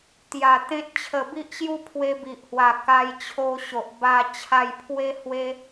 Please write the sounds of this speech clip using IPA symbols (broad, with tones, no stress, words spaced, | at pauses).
t̪ja˨˩ t̪ẽ˦t̚ t͡ɕʰə˨˩ bi˦ʔɕju˦ pʰwe˧bi˨ʔhwa˨˩ ka˧jt͡ɕʰo˧ɕo˨ʔ ba˧ t͡ɕʰa˧jpʰwe˦ hwe˦